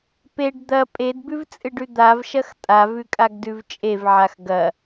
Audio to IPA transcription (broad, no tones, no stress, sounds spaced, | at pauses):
p e ɖ d̪ ɐ pʼ e d b ʉ v t͡sʼ ɨ ɖ ʉ d̪ a v ʃ ɐ x tʼ a v ʉ kʼ a ɡ d ʉ v t͡ʃʼ e v ʕ a x ɡ ɐ